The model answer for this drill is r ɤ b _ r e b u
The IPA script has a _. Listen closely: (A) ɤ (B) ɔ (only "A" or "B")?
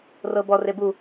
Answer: B